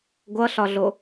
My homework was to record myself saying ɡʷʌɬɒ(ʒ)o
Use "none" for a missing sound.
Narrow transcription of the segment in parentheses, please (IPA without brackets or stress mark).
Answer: ɮ